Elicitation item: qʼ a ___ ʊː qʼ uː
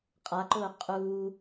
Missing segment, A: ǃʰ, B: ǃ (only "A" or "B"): B